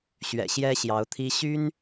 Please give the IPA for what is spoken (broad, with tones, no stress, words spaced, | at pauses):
ɕɥɛ̰˨˩ɕjɛ˦ɕjɑ˨˦ʊ̯t̪ʰi˦ ɕy˦n